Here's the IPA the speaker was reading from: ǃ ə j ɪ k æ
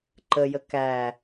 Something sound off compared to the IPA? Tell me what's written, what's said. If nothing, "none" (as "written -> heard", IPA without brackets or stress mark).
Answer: ɪ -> ə